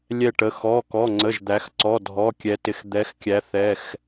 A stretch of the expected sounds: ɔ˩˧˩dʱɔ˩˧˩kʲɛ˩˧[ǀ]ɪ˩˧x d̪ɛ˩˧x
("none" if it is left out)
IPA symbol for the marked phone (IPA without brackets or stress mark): t